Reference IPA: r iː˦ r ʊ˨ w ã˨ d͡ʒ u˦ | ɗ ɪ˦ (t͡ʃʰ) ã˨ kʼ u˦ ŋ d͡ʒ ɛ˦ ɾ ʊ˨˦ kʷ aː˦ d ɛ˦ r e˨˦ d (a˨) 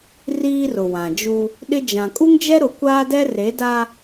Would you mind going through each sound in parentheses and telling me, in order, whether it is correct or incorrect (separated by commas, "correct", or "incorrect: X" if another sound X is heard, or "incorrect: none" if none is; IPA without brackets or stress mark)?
incorrect: d͡ʒ, incorrect: a˦